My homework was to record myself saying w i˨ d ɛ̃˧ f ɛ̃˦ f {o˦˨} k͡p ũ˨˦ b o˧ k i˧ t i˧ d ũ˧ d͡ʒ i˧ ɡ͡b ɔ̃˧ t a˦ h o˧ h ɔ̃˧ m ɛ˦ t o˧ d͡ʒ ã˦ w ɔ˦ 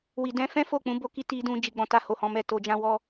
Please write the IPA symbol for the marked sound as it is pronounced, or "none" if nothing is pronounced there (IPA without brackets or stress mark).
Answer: o˦˨